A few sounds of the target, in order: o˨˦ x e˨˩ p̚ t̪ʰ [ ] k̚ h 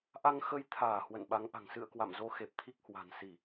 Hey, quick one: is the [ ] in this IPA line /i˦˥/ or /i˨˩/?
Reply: i˦˥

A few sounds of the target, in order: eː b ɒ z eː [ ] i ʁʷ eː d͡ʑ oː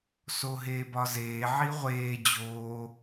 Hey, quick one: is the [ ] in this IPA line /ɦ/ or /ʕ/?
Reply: ʕ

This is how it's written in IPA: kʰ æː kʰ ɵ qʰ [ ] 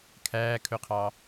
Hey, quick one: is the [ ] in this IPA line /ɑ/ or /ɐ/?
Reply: ɑ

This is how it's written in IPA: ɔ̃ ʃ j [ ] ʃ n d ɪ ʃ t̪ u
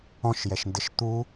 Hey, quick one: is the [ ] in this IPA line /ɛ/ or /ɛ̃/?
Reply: ɛ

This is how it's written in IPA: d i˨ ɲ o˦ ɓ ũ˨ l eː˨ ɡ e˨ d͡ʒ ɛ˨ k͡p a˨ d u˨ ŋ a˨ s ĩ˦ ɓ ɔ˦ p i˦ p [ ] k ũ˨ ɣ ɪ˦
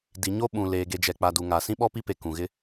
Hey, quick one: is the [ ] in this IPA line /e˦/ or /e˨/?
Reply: e˨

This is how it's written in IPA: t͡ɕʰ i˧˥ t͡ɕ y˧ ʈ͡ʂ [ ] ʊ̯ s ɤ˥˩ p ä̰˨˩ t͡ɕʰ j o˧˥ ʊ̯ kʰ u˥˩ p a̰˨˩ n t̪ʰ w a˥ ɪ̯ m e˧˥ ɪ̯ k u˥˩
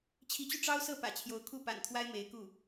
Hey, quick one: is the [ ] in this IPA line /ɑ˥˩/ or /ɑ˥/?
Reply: ɑ˥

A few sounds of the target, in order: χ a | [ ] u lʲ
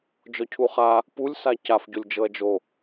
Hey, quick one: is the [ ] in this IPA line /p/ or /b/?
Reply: p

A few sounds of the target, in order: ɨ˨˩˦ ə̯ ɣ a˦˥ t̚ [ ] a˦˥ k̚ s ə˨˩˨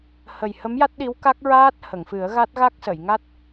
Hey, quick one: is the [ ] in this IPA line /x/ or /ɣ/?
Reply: ɣ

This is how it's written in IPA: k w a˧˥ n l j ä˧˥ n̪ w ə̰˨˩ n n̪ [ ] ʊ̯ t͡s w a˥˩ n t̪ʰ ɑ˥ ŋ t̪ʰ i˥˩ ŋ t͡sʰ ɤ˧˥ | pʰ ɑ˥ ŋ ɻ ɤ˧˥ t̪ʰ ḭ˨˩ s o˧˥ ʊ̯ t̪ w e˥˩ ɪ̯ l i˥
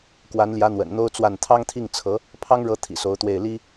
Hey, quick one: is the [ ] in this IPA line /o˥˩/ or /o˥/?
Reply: o˥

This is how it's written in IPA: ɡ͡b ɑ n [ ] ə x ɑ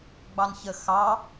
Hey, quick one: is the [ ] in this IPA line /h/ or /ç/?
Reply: ç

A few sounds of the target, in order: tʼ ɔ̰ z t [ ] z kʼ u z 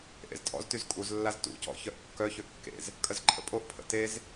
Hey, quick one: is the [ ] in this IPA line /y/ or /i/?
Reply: y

